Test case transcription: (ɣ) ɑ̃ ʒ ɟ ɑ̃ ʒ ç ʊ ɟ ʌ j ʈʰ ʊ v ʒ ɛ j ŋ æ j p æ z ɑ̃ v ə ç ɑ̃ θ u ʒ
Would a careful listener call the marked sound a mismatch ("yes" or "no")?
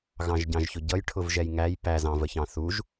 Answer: no